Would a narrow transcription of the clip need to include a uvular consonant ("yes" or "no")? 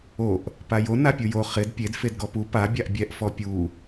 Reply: yes